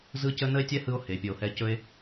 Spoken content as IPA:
z ɯ˦ c ə˦ n ə˦ e̯ tʲ ɛ˦ h ɯ˦ o̯ h e˨ pʲ ɵ˨ o̯ h ɛ˧ c ɵ˦ e̯

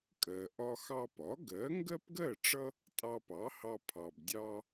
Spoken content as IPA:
kʼ ɜ˩ ʔ ɒ˧ x ɑ˧ p ɒ˩˥ ɡ ɜ˩˥ ŋ ɡ ɜ˥ p ɡ ɜ˥˩ ʈ͡ʂ ʌ˥ | tʼ ɑ˧ p ɑ˩˥ h ɑ˧ pʰ ɑ˩ b dʲ ɑ˧

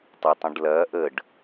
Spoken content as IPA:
tˤ ɐ tˤ ə̃ ɖ l ɐː ʔ ə ɖ

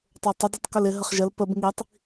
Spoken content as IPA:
tˤ ə˞ tˤ ʊ d i tˤ k ʊ l ɪ ɦ ə χ ʒ ə l p ə b ŋ i tˤ

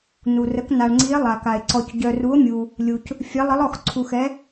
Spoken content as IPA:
n u˩ r ə˩˧ k n a˩ ɳ ŋ͡ǀ i˩˧ e̯ lˠ a˩ k a˩ e̯ ǀ ɔ˩ c ɟ œ˩ r u˩˧ o̯ mʲ u˩ | lʲ u˩ c | fʲ ɛ˩˧ lˠ ə˩˧ lˠ ɔ˩ x ǀʰ u˩ x ɛ˩˧

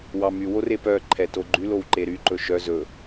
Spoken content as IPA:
w ɑ m y w o r e p œ ǃʰ ɛ t o ɡ͡ǃ y l o w ǃ e ɾ y ǃ ɵ ʃ œ z ɵ

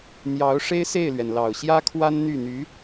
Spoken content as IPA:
n̪ j ɑ˧˥ ʊ̯ ʂ e˥ ɪ̯ s e˥˩ ɪ̯ l ɥ ɛ˩ n l ɑ˨˩ ʊ̯ ɕ j ä˥ kʰ w a˥ n n̪ y˥˩ n̪ y˧˥

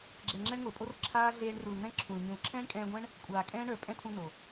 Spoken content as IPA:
ɡ͡ǁ ɛ˨ ŋ͡ǁ ɛ˧ ɳ ŋʷ e˨ pʼ o˧ r ǁʰ aː˦ ɮ eː˧ ɳ r u˨ l n ɛ̃˦ ǁʰ ũ˨ l ɲ ũ˨ l ǁʰ ɛ̃ː˦ ɳ kʼ ɛ̃ː˧ ɡʷ ɛ̃˦ ɳ | kʷʼ aː˨ kʼ ɛ̃ː˦ ɳ ə˞˨ pʼ ɛ̃˦ tʰ ũ˧ n o˨

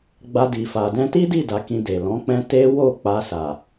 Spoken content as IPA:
ɡ͡b a˧ d i˨ f a˨ d ɛ̃˧ t i˦ d i˦˨ d a˧ k ĩ˧ d e˨ l ɔ̃˨˦ k͡p ɛ̃˦ t e˦ w o˦˨ k͡p a˧ s a˨

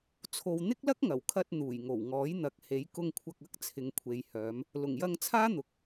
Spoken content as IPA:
t͡sʰ o˨ w n̪ ɪ˥ k̚ l ɐ˥ k̚ ŋ ɐ˨˩ w kʰ ɐ˧ t̚ n̪ uː˨˩ j ŋ o˨˩ w ŋ ɔː˨˥ j n̪ ɐ˨˥ k̚ h e˨˥ j k ʊ˧ ŋ kʷʰ ɐ˧ k̚ ɐ˨˥ k̚ t͡sʰ ɪ˨ ŋ kʷʰ e˨ j h œː˨˧ m | l ʊ˨˩ ŋ j ɐ˧ ŋ t͡sʰ aː˥ n̪ ʊ˨ k̚

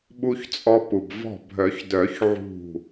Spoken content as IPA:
ɓ u˧ ç t͡sʼ ɔ˧ p u˩ b v ɔ̤˧˩ bʱ œ˨˩˦ ç d œ˨˩˦ ç ʕ ṳ˧˩

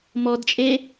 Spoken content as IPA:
m ɔ d t͡ʃʼ e

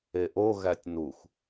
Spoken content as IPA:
e ʔ o ɣ æ tʲ n u x

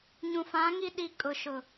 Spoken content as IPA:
ɲ ũ˨ f ã˨˦ ŋ i˦ ɗ i˦ kʼ ʊ˨ ʃ ʊ˨

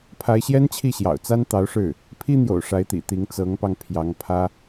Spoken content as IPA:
pʰ a˧˥ ɪ̯ ɕ j ɛ˥ n t͡ɕʰ i˥˩ ɕ j ɑ̰˨˩ ʊ̯ t͡s a˥ n t̪ ɑ˧˥ ʊ̯ ʂ ɻ̩˥˩ | pʰ i˥ n̪ j o̰˨˩ ʊ̯ ʂ a˧˥ ɪ̯ t̪ ḭ˨˩ t̪ i˧˥ ŋ t͡s ɤ˧˥ ŋ p ɑ˧ ŋ pʰ j ɑ˧˥ ŋ pʰ ä˥

